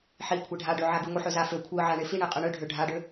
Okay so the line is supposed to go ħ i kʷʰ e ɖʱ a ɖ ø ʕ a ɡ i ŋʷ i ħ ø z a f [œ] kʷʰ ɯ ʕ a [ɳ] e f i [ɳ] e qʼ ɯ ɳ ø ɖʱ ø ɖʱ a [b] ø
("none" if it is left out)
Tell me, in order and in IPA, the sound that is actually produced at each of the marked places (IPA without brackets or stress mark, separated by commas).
ø, ɳ, ɳ, ɖ